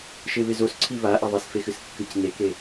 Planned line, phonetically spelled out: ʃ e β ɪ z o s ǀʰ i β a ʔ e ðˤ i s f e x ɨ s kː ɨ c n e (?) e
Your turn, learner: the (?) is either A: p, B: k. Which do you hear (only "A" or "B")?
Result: B